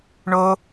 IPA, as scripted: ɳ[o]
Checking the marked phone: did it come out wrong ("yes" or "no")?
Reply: no